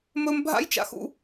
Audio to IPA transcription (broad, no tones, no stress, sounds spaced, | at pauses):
m ɵ m bʱ a̰ j t͡ʃ a̰ x ṵ